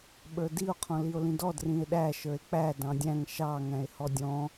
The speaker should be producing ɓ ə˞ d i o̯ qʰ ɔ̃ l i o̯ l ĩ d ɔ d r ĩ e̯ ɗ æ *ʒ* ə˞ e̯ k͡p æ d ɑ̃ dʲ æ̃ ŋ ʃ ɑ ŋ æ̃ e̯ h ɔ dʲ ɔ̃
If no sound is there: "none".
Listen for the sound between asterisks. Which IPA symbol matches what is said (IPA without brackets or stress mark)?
ʃ